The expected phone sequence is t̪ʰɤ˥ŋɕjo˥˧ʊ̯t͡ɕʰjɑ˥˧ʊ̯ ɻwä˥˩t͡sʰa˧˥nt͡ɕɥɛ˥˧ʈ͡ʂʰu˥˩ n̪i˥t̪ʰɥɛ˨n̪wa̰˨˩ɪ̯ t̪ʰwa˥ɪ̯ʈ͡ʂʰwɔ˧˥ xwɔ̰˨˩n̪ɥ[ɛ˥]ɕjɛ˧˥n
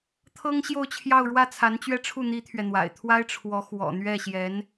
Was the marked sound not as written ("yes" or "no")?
yes